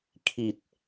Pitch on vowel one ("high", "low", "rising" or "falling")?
low